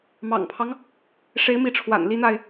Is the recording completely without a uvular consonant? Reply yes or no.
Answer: yes